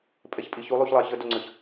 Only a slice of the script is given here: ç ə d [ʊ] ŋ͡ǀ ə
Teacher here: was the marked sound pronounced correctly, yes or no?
yes